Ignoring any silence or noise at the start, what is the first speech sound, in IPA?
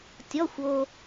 tʲ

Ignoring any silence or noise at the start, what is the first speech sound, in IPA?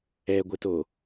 ɛ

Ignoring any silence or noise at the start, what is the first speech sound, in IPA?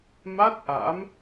m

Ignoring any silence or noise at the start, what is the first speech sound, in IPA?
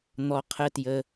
n̪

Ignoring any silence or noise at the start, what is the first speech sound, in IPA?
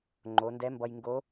ŋ͡ǃ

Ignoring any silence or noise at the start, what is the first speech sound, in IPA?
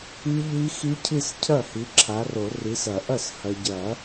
i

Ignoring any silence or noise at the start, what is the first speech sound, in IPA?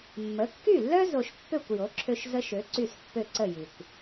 mː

